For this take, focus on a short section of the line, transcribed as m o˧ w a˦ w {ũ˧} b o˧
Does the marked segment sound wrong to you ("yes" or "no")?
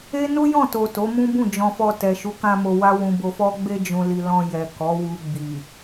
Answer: no